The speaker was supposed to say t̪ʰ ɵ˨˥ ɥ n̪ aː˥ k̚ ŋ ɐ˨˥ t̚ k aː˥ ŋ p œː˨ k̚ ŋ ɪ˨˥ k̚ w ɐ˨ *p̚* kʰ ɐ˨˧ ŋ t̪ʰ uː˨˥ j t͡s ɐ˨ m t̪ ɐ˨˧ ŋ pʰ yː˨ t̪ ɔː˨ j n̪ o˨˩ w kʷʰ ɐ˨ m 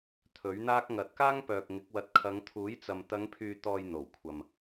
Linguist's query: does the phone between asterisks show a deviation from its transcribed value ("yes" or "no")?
yes